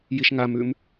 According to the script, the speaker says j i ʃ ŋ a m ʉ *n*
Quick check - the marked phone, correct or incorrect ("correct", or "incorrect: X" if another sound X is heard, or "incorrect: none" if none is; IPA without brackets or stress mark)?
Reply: incorrect: m